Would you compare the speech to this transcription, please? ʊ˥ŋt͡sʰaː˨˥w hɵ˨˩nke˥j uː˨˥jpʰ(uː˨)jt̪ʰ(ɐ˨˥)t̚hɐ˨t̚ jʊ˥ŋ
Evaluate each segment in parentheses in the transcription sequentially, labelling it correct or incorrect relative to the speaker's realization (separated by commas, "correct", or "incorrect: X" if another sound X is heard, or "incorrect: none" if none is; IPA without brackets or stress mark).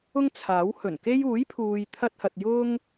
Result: correct, incorrect: ɐ˧